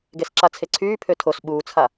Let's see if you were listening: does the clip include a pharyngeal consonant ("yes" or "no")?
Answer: no